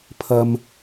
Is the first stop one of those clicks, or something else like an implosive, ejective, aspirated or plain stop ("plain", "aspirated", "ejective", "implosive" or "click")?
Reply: aspirated